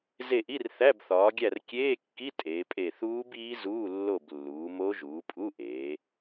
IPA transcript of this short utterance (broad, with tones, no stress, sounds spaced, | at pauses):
z e˦˨ ʔ i˧˥˧ r θ æ˧˥˧ b θ ɒː˩˧ ɡʲ æ˦˨ r kʲ eː˧˥˧ kː i˧˥˧ tʼ eː˩˧ pʼ e˦˨ θ uː˦˥ b iː˦˥ z uː˧˥˧ lː o˦˨ b lː uː˩˧ m o˦˥ ʒ uː˩˧ pʼ u˧˥˧ ʔ eː˩˧